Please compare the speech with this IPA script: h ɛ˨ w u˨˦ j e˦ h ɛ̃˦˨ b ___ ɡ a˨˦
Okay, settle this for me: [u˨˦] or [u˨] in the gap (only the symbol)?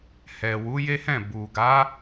u˨